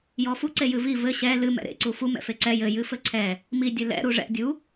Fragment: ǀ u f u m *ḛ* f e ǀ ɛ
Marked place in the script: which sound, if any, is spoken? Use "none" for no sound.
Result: ɛ̰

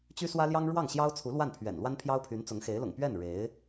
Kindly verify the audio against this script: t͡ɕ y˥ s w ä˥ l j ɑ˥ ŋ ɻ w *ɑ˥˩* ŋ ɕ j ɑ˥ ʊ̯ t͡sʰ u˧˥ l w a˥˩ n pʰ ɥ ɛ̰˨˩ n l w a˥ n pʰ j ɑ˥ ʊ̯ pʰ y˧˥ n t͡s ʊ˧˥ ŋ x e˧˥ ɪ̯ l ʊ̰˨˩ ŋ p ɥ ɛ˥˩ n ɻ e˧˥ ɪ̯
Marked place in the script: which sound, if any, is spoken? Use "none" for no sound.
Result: ɑ˥˩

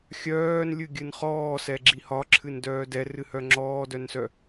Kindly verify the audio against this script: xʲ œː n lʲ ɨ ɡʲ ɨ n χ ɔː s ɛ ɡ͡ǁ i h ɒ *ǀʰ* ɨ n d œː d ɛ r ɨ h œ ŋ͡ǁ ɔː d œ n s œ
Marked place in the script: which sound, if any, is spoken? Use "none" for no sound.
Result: ǁʰ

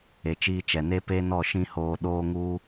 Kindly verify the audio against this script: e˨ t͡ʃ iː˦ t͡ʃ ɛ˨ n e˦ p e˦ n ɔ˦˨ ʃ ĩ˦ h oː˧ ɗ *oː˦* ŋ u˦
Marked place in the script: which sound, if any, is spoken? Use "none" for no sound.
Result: oː˦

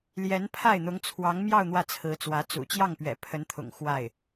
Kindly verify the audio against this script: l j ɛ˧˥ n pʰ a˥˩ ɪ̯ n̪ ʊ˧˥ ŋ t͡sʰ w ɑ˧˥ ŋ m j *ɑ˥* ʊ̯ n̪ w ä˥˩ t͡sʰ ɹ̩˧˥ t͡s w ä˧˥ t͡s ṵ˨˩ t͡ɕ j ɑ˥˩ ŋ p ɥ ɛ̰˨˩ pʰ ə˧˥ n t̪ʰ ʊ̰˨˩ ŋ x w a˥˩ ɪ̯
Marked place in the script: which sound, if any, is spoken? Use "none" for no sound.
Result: ɑ˥˧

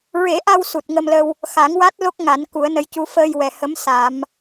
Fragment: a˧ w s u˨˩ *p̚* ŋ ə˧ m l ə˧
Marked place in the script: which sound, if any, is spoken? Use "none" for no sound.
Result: t̚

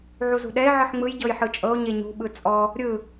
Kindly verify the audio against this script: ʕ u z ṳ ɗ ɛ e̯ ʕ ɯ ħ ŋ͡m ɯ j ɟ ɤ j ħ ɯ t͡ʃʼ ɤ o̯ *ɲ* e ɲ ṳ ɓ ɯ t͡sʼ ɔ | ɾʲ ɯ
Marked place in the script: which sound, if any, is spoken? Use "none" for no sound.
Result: ɲ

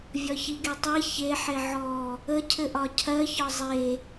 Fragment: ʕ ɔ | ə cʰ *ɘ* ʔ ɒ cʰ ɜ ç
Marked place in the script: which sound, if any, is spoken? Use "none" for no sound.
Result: ɘ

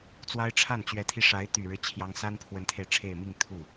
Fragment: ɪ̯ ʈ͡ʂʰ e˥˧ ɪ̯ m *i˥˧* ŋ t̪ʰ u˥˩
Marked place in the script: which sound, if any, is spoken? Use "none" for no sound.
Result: i˥˧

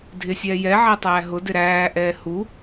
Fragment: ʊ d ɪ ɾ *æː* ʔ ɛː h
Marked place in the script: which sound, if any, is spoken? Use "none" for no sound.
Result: æː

